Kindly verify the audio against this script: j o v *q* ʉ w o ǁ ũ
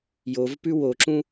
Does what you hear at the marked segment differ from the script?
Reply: yes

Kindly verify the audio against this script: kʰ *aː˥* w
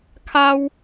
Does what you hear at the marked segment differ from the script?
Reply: yes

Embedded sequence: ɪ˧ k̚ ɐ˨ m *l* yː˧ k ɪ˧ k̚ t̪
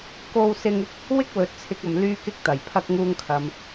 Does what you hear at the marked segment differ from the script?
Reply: no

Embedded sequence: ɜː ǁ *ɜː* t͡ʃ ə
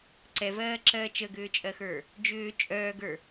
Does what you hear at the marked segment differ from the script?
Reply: no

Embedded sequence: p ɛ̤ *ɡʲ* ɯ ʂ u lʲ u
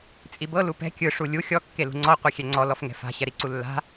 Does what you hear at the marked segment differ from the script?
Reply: yes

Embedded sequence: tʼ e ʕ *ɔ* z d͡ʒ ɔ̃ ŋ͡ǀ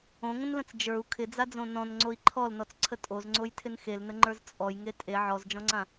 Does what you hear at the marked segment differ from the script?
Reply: no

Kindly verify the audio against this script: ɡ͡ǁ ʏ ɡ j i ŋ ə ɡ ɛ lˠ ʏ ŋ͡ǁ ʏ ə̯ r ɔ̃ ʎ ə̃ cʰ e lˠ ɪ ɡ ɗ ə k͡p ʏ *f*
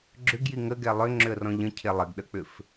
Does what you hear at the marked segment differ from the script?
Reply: no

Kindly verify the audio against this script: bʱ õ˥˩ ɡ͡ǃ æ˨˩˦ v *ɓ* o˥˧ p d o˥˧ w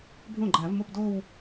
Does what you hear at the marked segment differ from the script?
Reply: yes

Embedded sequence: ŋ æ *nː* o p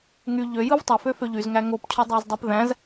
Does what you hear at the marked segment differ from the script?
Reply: yes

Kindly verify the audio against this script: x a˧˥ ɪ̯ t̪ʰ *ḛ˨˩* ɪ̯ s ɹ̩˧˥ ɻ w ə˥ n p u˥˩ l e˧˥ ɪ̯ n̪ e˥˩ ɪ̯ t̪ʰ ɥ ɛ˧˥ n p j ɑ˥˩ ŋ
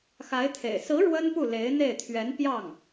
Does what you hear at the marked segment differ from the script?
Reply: no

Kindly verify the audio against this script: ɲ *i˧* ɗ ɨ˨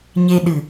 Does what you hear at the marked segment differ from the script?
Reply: yes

